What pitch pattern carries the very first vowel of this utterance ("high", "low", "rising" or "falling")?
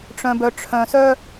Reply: low